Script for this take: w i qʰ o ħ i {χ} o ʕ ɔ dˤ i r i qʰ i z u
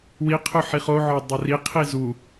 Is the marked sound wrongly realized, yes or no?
no